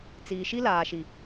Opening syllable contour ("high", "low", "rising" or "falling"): low